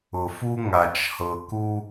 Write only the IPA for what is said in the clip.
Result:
ʊ˨fu˦ ŋa˨t͡ʃhɤ˨ku˦

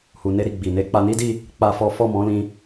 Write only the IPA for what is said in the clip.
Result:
hu˨ ne˧ɾi˨ ɡ͡bi˨ ne˧k͡pa˧ni˦di˦˨ | k͡pa˦fɔ˦ fɔ˦˨mɔ̃˨˦lĩ˧

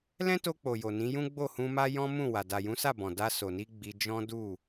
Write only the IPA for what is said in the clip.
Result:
lɛ̃˦to˧ k͡po˨ jo˨nĩ˨˦jũ˦ ɡ͡bo˦˨hũ˧ma˦ jɔ̃˦mũ˦˨ wa˨da˨jũ˨˦sa˦˨ bɔ̃˨da˧so˨ni˧ ɡ͡bi˧ d͡ʒɔ̃˦du˦˨

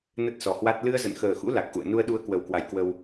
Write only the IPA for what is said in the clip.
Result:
nə˦˥t̚sɔ˨˩hwa˦˥t̚ lɨ˧ə̯zə̰˧˨nxəː˨˩xṵ˧˥ la˨˩k̚ʔṵ˧˨ə̯ nu˧ə̯ɗu˧ə̯kwə˨˩wkwa˨˩j kwə˧w

